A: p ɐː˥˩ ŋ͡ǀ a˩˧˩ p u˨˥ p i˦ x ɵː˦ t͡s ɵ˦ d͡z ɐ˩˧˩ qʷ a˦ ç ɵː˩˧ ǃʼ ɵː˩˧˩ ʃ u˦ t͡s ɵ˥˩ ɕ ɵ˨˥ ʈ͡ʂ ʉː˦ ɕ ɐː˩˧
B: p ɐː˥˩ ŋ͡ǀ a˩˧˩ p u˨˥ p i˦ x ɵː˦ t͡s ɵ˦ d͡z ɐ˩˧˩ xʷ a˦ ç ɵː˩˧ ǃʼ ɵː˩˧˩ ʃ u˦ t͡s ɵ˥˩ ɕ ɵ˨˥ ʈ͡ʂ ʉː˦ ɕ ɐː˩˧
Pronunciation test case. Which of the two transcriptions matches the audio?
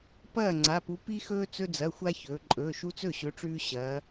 B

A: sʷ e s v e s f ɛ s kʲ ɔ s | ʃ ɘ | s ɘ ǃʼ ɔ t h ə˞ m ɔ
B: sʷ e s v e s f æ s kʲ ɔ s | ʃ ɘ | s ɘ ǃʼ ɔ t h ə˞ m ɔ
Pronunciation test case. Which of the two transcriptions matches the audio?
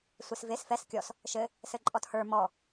A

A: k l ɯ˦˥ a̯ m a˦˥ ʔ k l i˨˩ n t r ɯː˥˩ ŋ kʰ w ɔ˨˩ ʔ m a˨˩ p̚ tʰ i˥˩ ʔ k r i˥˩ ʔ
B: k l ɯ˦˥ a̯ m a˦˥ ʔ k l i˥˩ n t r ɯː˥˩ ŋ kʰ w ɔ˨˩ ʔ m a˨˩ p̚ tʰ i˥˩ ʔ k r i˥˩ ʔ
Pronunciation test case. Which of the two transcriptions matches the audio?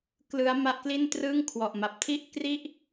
B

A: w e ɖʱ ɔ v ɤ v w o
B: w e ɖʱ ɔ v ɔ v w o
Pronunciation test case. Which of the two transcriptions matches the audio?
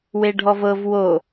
A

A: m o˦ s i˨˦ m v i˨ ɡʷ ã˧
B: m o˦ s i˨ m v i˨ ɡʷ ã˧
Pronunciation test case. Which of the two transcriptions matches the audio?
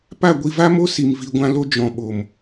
B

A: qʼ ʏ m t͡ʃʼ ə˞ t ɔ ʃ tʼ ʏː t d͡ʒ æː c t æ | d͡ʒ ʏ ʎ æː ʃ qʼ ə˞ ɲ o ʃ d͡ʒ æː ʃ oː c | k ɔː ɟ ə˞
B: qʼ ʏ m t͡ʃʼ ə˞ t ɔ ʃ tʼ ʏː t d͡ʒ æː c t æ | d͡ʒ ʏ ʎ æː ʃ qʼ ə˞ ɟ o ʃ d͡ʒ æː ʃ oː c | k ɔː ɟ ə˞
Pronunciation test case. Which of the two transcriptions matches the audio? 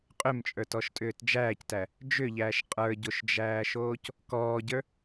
B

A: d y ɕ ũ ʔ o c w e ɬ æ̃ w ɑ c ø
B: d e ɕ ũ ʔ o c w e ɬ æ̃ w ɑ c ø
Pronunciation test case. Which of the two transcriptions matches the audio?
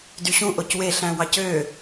A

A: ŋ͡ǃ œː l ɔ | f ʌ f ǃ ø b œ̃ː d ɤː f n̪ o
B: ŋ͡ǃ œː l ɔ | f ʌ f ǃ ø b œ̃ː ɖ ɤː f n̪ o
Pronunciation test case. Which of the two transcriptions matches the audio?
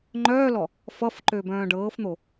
B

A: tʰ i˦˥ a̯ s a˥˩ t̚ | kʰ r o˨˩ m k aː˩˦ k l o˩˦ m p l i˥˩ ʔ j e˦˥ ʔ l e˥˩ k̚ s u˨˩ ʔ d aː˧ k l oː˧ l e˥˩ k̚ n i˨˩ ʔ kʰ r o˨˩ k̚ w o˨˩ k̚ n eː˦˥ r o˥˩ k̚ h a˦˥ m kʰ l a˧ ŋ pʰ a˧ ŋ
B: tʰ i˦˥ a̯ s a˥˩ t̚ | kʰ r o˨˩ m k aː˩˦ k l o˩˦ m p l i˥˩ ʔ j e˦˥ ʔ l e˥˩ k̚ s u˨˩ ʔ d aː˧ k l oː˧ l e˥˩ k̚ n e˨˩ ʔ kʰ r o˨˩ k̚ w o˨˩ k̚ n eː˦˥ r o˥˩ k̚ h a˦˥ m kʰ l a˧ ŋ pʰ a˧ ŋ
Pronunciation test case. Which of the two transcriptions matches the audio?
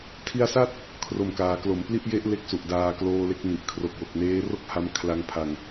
A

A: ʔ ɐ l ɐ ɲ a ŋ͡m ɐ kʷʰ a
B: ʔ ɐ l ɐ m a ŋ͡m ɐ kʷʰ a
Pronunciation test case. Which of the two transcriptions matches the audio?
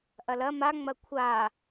B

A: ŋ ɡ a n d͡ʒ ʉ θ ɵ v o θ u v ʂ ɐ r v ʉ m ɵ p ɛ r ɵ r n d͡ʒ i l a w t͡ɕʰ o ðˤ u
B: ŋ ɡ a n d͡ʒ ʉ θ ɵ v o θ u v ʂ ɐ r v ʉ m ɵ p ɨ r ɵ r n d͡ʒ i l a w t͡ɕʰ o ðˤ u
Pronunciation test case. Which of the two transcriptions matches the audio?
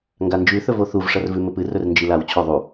B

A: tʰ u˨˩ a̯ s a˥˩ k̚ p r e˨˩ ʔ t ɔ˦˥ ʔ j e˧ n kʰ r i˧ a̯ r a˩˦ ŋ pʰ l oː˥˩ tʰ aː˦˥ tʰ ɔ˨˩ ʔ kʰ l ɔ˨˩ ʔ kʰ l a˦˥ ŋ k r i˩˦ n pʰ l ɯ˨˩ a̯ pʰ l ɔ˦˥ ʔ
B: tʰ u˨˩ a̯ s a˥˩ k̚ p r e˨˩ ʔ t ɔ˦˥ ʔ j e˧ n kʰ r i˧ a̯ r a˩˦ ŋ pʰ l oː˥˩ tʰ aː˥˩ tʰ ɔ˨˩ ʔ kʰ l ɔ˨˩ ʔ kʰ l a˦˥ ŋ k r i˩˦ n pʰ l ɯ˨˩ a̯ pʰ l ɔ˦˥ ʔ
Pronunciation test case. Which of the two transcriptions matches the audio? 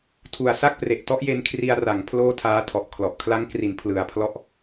A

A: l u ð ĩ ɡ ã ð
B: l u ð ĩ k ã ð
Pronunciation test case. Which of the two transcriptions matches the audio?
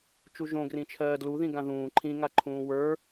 A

